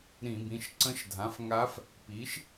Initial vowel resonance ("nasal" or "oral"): nasal